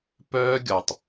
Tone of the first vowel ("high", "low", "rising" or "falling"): high